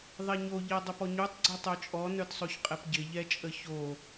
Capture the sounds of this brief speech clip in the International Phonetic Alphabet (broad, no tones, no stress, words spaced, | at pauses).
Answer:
ðˤɛɲo ʎɛdˤəpɔɲutˤ ɡ͡ǀɛtˤœt͡ʃʼɔ nœtsˤoçqʼɛpɟɪ ʎɛt͡ʃʼəço